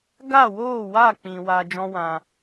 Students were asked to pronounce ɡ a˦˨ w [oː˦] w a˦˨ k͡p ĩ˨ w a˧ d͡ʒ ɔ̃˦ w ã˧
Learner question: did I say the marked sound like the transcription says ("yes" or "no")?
no